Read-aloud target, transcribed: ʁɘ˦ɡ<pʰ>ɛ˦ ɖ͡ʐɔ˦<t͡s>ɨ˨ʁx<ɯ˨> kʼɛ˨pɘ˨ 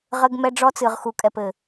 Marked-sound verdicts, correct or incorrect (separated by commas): incorrect, correct, incorrect